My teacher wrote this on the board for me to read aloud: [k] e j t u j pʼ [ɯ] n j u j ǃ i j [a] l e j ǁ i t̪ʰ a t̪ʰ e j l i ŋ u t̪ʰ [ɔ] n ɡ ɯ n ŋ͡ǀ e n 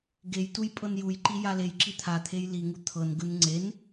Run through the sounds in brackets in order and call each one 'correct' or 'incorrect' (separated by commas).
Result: incorrect, incorrect, correct, incorrect